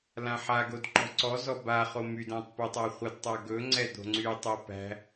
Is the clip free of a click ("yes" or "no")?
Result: no